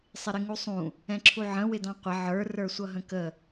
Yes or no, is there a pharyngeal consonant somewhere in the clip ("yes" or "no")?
yes